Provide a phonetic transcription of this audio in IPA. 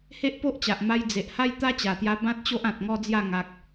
he˦ʔpo˦ʔt͡ɕa˨ʔ ma˧jd͡ze˨ʔ ha˦jt̪a˦t͡ɕa˨˩t̪ja˧ bã˦t̚ t͡ɕo˦ʔã˨t̚ŋɔ˦d͡zja˥˧ ŋa˨k̚

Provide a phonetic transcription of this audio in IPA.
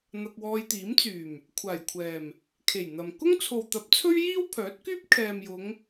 n̪ɐ˧k̚wɔː˧jt̪iː˨˥mt͡syː˨˩m | kʷʰaː˨˩jkʷʰɛː˨˩m | kʰe˨˩jn̪ɐ˨m kʊ˥ŋt͡sʰo˨wt̪ɐ˨˥p̚ t͡sʰɵ˥ɥjiː˥wpʰœː˨˥t̚kyː˥p̚ kʰɛː˨mjʊ˨˧ŋ

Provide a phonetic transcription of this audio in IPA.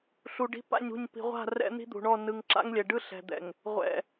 ɬu˨ɖi̤˦ pa̰˦˨ɲṳ˦˨ɲ pi̤˨ʁʷa̤˦˨ rɛ̰˦n̪i̤˦d̪ṳ˨ɳɔ˦˨ nɯ˨ŋǁa̰˦ŋlʲɛ˨ɖɯ˦ ɬɛ̤˨d̪ɛ̰˨ŋ | ʁʷɛ̰˨

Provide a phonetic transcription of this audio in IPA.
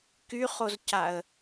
kyχozcaə̯

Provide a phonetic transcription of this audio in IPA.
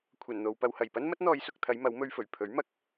kʷʰɐ˨˩nn̪o˨w pɐ˨whɐ˨˩jpɐ˥n mɐ˥t̚n̪ɔː˨˧jsʊ˨k̚t̪ʰɐ˨˧j mɐ˨˥wmɵ˧ɥfɵ˨˩ɥ pʰɵ˨˥ɥmɐ˨˥k̚

